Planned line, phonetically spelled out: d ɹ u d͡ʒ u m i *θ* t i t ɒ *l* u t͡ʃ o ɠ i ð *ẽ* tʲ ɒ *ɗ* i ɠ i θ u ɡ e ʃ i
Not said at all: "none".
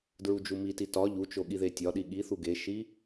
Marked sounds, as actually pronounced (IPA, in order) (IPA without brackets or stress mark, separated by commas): none, ʎ, e, ɗ